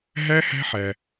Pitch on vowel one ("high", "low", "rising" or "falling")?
high